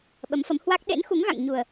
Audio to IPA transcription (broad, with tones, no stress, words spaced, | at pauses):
ɓə˨˦mfə˨˦mhwa˦˥k̚ ɗḛ˧˥nxu˨˦ŋɣa̰˧˨ŋ ɲu˨˩ə̯